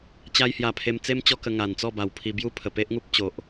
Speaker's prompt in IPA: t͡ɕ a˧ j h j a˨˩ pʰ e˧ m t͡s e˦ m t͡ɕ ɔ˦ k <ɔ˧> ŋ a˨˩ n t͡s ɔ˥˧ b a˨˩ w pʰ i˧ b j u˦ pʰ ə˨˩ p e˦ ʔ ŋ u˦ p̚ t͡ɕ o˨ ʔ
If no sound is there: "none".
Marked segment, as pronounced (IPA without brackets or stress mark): ə˧